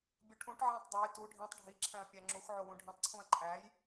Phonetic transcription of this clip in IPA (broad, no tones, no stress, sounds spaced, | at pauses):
bʲ u ʈʰ ũ ʈ ʕ æ̃ tˤ dˤ o j t u ɖʱ ĩ tˤ ɖʱ i ǁʰ æ̃ ɐ̯ pʲ æ ŋ͡ǁ u x ʕ o w ũ ɖʱ ĩ tˤ ǀʰ ũ ɐ̯ ǃʼ æ j